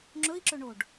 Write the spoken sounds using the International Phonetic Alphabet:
ŋ͡ǁ ɵ i̯ ǁ ɵ ɳ o ɖ

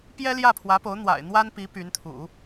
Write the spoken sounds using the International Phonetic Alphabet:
p j ɛ˥ l j ä˥˩ pʰ w ä˧˥ p o˧˥ ʊ̯ n̪ w a̰˨˩ ɪ̯ n̪ w a˥ n p i˧˥ p y˧˥ n t̪ʰ ṵ˨˩˦

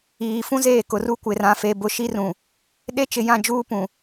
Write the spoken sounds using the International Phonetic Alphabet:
iː˨ f ũ˦ z eː˦˨ k ʊ˨ r u˦ kʷ ɪ˨ r ã˨ f e˨ b ʊ˨ ʃ i˦ r ũ˨ | ɗ e˦ t͡ʃ ɪ˨ j ã˦˨ d͡ʒ uː˦ p ũ˨

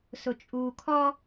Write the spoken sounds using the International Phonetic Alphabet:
s ʊ t͡ʃʼ uː kʰ ɔ

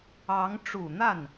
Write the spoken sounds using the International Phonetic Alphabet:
ɑ˧˥ ŋ ʈ͡ʂ u˨˩ n̪ a˥˩ n

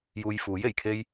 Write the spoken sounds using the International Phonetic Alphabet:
j uː˧ j f uː˨˥ j e˨˩ j kʰ e˥ j

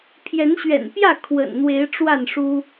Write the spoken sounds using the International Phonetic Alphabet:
pʰ j ɛ˨˦ n ɕ ɥ ɛ̰˨˩ n p j ä˥˨ kʰ w ə̰˨˩ n n̪ w e˨˦ ɪ̯ ʈ͡ʂ w a˥˨ n ʂ u˦

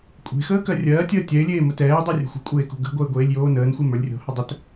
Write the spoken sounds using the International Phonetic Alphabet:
kʷʼ e̤ x əː k ɜ rʲ ɜː tʲ əː tʲ ɛ ɪ̯ lʲ eː m ə t ɛː dˤ e rʲ o̤ xʷ ə̤ kʷʼ eː k o̤ ɡ ə̤ ɡʷ ɜ ɪ̯ ɡʷ eː lʲ j oː n əː n xʷ e m ə˞ lʲ rʲ o̤ h ə dˤ ə t

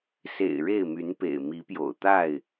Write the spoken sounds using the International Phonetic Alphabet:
s ḛ˨˩ ɪ̯ ɻ e˥˨ ɪ̯ m y˨˦ n p ḛ˨˩ ɪ̯ m i˨˦ p j o̰˨˩ ʊ̯ t̪ a˥˨ ɪ̯

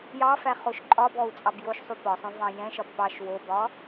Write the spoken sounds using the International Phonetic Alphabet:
j ɑ f æ χ o ʃ ǃʼ ɒ b ɔ u̯ t͡sʼ ɑ b j o ʃ sˤ u p ɒ sˤ õ v ɑ̃ j ɛ̃ ʃ ɒ b p ɑ ʃ w o b ɒ

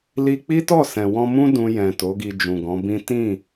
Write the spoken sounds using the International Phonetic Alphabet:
l i˧ k͡p i˦ t ɔ˦˨ s ɛ̃˨ w ɔ̃˧ m ũ˦ d ũ˧ j ɛ̃˨ t o˨˦ ɡ i˧ d͡ʒ ũ˨ ɡ ɔ̃˨˦ b ĩ˦ t ĩ˦˨

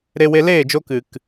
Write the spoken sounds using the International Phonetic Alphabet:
ɾ e˧ w e˧ l eː˦˨ d͡ʒ o˧ k ɨ˨ k

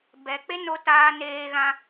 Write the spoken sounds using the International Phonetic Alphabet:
b ɛ˨ k͡p e˦ n o˧ t aː˧ n eː˧ ɣ ã˧

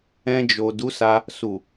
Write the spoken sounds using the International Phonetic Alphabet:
ɛ̃˧ d͡ʒ o˨ d u˨˦ s a˧ | s u˨

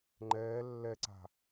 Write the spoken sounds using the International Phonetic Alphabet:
ŋ͡ǃ ɛː lː ɛ ǀ a̤

